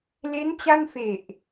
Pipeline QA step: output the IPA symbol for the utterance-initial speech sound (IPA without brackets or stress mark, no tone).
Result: l